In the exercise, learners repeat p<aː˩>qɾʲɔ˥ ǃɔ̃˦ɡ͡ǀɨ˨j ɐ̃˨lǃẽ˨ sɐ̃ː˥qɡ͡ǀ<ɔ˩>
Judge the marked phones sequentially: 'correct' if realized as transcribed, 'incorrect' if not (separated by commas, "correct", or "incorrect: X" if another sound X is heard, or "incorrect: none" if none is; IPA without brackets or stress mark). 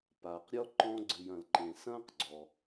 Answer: correct, correct